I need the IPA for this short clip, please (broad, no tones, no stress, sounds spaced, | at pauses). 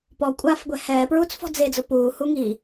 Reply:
p ɔ kʷʼ aː f ɡʷ ɛ h ɛː p ɹ uː t͡s f ɔ̤ d͡z e d͡z ʊ p uː h u ŋ i